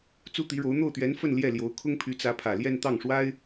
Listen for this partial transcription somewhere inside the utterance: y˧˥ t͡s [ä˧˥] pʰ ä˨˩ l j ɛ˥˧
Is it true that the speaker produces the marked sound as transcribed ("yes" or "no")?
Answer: yes